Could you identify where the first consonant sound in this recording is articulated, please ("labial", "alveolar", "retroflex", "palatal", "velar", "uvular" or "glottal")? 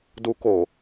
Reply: alveolar